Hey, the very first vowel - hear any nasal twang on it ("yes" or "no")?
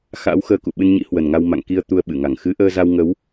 no